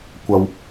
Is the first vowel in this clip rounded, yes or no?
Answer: no